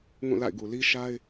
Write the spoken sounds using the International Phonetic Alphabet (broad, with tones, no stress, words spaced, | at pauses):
ŋũ˦˨la̰˦˨ɪ̯ɡu˨ li˦ʃa˦ɪ̯